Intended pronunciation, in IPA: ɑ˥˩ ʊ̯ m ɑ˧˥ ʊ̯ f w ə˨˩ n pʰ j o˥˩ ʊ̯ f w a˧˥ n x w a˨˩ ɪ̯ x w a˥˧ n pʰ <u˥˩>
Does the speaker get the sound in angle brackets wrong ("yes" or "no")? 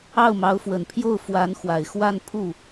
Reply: no